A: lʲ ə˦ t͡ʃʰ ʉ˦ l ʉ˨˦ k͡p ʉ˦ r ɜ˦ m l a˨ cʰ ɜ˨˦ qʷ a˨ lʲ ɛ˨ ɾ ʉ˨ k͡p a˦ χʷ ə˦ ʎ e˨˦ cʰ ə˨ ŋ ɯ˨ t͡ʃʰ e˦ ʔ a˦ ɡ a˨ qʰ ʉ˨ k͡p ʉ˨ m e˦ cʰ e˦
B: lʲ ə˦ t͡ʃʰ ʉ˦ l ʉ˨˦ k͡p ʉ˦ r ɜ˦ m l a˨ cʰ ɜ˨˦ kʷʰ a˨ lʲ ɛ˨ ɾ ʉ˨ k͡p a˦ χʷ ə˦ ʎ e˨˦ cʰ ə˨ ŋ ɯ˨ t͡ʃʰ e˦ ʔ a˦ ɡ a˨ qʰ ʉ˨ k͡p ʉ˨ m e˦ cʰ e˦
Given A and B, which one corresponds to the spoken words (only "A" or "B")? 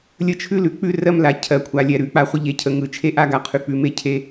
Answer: B